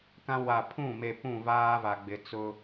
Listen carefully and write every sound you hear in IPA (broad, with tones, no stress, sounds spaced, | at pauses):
k ã˦ w a˨ pʰ ũ˦˨ m e˨ p ũ˦˨ v aː˦ v a˨ ɡ͡b ɪ˨ t͡s ʊ˦